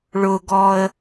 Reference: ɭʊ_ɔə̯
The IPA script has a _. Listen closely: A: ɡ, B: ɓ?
A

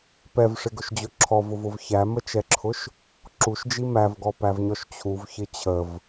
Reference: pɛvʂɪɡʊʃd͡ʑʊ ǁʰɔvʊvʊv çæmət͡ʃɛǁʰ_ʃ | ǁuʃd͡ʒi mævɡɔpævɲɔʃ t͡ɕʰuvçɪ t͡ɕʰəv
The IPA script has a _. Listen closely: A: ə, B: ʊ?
B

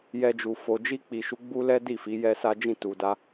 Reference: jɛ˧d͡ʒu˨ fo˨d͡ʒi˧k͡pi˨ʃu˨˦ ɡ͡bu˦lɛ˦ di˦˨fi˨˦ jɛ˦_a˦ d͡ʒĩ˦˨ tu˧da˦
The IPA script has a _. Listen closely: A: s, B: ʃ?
A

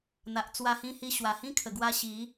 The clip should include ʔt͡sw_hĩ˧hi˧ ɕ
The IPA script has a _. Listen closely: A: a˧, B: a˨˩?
A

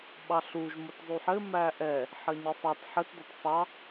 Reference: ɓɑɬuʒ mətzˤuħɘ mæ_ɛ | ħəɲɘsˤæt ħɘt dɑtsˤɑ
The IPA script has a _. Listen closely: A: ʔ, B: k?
A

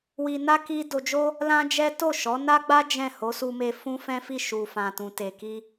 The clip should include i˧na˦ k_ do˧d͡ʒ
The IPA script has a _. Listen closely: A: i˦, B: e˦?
A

